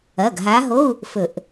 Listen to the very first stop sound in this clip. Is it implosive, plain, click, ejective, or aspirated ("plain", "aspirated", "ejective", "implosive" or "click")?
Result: plain